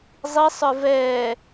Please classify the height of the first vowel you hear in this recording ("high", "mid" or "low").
high